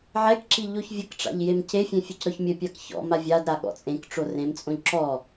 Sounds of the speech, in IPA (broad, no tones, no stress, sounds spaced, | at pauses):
ʕ ɛ k ǁ i ʎ o ç vʲ ɘ k ʈ͡ʂ a̰ ʎ j e m c e fʲ ẽ fʲ e c ɾ ɔ ç mʲ ɘ pʲ a k ç ɔ̰ m a vʲ a d ɾ a ɠ ɔ̰ t͡sʼ ẽ k ʈ͡ʂ o r ẽ m t͡sʼ õ ʎ ǁ ɔ